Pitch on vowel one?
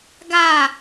falling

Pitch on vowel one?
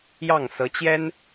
falling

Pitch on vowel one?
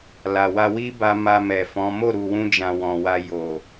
low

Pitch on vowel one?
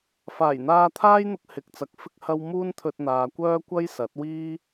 low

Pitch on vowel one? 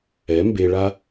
rising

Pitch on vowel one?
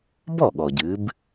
falling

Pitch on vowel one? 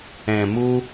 low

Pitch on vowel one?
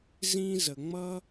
high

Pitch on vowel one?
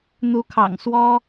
rising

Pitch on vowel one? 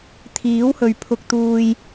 rising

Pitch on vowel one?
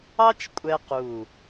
high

